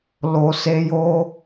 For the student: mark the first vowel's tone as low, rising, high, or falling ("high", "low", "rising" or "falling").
low